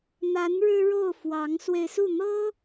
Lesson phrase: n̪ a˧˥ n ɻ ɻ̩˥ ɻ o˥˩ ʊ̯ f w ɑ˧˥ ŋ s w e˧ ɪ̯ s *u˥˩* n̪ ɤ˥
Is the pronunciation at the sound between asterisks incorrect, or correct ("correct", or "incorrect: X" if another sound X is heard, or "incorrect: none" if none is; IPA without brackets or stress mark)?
correct